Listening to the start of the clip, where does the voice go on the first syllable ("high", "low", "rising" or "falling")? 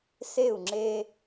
falling